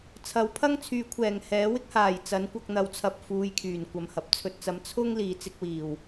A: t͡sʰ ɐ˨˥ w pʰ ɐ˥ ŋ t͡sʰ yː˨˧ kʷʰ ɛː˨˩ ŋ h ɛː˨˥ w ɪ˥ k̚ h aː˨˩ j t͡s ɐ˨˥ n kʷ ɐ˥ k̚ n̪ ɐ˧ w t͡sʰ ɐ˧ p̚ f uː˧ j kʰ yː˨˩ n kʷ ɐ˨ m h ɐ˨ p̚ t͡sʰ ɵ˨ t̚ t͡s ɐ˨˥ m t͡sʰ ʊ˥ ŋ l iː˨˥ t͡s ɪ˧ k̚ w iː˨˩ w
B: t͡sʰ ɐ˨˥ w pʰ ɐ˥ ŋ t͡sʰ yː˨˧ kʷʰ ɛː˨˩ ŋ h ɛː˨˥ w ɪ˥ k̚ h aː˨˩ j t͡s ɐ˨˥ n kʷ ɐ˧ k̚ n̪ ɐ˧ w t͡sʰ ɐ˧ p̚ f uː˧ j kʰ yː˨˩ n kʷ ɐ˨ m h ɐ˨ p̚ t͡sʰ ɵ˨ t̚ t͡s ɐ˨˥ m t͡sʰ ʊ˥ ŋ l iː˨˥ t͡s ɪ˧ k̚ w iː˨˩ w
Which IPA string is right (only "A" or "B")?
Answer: B